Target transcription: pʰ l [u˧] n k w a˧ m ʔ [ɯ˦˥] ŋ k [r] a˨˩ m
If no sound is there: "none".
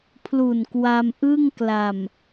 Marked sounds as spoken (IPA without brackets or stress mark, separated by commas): u˨˩, ɯ˥˩, l